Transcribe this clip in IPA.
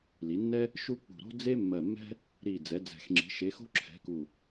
l i˩˧ nː ɛ˦ | ʃ u˦ k͡p ṳ˨˩ ɾ o̤˦ d͡z e˦ mː ɜ˨˩ mː ɛ̤˦ | ɾ i˨˩ d͡z ɛ˩˧ d͡z ɛ̤˨˩ x ŋ͡ǁ i̤˩˧ ʃ e˩˧ x o̤˦ ǁʰ ɛ̤˩˧ k u˨˩

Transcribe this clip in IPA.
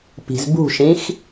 p i̤ z b ṳ ʃ ĩ x

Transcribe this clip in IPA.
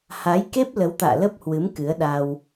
h a˨˦ j k e˦˥ p̚ l ə˨˦ w t̪ a̰ː˧˨ l ə˦˥ p̚ h w ɨ˨˦ m k ɨ˨˦ ə̯ ɗ a˧ w

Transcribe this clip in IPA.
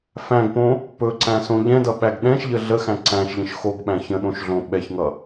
f æ̃ ɡ p õ | p ɵ ǀ æ̃ s õ ʎ ɛ̃ d ʌ ɓ æ ɡ ɗ ɛ̃ ʃ ʎ ə ɮ ə x æ̃ ǀ æ̃ ʃ ʎ ə̃ ʃ x o ɡ ɓ æ̃ ç ə̃ ɗ õ ʃ ɮ õ ɓ ɛ ç ŋ ʌ

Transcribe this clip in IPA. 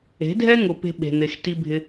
e̤˨˦ dʱ ɛ˦ ŋ ʊ˨ p e̤˦ ɓ e̤˨ n̪ e˨ x t i˦ bʱ ɪ˦

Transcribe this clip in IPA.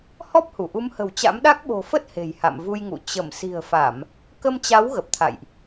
h ɔ˦˥ p̚ h u˧˩ ʔ u˨˦ m h ə̤˨˩ w t͡ɕ a̰˧˥ m ɗ a˦˥ k̚ ɓ o̤˨˩ f ə˦˥ t̚ h e̤˨˩ j h a̰˧˨ m v u˧ j ŋ ṵ˧˨ t͡ɕ ə˧˩ m s i̤˨˩ ə̯ f a˧˩˨ m | k ə˧ m t͡ɕ a˨˦ w ɣ ə˨˩ p̚ t̪ʰ a̰˧˨ j ʔ

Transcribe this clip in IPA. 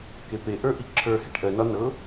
k e p e ʔ ə˞ ʔ i ǁʰ ə˞ h e ʈ ʔ ɜ n ɒ n ɤ

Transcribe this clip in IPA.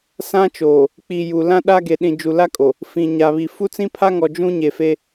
s ã˦ t͡ʃ oː˨ | k͡p i˨ j u˨ l ã˦ ɗ a˦ ɡ e˨ ɗ ĩ˨ d͡ʒ u˨ l a˦ kʼ o˨ | f ĩ˨ ɲ a˨ β i˨ f u˦ t͡s ĩ˦ pʰ a˦ ŋ ɔ˨ d͡ʒ ũ˦ ɲ e˨ f e˦

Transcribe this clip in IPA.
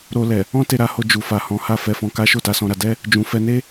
ɾ o˧ l ɛ˨ | ɔ̃˦ t e˧ ɾ a˧ h o˧ d͡ʒ u˨ f a˨ h ɔ̃˨˦ h a˦˨ f ɛ˧ f ɔ̃˧ k a˦ ʃ o˦˨ t a˧ s ɔ̃˧ ɾ a˧ d ɛ˦ | d͡ʒ ũ˨ f ɛ˧ n e˦

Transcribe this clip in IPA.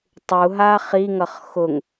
tˤ u ɦ a χ i ŋ ʌ χ x ʊ ŋ

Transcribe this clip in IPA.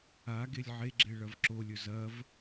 a ɡ e lʲ ʕ e ɡ͡ǁ e ɭ ɐ v ǁ o lʲ ɵ z ɐ v

